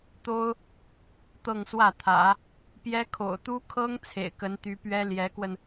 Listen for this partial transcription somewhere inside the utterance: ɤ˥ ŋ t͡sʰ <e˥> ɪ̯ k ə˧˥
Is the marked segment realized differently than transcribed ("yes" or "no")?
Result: yes